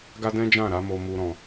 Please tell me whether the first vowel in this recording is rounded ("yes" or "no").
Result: no